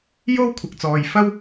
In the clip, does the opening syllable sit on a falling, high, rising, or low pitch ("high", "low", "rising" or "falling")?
high